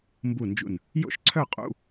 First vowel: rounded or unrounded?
rounded